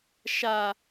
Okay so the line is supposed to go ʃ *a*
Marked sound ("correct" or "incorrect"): correct